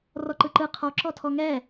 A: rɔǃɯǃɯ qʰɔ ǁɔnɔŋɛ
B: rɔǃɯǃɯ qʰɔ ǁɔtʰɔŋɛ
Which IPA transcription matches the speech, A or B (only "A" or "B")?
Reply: B